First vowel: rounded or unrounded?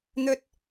rounded